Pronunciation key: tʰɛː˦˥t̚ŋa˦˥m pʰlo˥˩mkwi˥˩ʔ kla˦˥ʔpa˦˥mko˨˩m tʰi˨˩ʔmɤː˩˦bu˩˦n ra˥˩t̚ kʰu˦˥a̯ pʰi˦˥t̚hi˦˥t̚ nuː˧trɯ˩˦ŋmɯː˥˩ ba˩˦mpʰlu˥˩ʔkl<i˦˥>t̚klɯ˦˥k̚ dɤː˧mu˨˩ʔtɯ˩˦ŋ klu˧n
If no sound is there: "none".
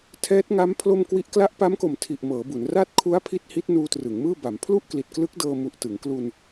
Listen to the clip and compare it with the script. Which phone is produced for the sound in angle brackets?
i˨˩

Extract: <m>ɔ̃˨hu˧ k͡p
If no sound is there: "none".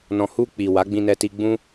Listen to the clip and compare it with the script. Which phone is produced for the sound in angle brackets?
n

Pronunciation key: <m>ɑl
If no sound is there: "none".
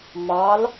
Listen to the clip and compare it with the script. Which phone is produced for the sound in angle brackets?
m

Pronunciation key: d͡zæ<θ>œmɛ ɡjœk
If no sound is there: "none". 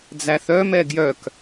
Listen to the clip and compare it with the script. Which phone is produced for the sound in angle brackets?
θ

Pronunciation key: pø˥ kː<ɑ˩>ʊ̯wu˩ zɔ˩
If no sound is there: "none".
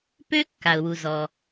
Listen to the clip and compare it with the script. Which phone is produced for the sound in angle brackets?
a˩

